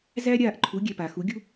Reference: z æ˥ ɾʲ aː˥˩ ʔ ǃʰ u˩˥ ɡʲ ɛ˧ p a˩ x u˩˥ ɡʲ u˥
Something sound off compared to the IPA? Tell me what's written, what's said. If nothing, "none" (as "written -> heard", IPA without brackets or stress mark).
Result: none